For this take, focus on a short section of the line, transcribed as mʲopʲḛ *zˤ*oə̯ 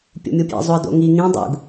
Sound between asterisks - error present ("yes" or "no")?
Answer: no